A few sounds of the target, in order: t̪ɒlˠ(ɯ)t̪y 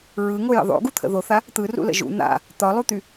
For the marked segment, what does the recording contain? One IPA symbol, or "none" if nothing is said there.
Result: u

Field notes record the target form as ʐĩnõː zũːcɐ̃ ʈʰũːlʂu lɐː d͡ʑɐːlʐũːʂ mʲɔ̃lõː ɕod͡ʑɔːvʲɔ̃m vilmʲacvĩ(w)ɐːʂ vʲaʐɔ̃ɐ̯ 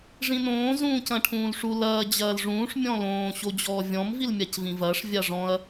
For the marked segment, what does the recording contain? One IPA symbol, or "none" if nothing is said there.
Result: v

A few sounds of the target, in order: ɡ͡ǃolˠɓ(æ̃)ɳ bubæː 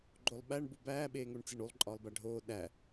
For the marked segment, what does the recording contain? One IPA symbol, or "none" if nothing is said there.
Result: æ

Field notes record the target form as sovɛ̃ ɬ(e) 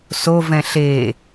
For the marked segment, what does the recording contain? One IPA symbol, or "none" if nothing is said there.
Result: e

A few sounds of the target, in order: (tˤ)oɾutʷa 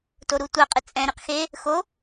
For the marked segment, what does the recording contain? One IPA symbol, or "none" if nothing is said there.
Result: t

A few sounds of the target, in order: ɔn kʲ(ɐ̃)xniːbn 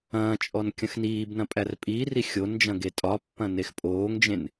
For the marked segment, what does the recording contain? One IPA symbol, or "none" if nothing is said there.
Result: ɐ̃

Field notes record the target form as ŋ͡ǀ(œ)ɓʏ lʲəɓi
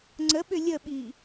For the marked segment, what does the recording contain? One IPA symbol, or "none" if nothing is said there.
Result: ə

